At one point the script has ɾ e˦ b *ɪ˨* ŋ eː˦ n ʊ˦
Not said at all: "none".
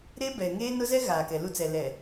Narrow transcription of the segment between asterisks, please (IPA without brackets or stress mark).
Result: ɛ˨